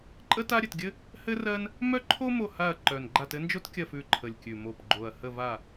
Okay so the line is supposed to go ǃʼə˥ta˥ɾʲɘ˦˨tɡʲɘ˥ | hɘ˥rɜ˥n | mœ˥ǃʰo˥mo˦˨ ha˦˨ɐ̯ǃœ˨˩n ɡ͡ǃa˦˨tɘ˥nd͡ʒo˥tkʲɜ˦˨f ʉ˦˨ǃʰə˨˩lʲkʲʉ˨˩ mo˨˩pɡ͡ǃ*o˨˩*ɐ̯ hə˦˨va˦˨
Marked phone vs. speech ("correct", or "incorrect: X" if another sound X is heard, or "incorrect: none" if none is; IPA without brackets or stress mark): correct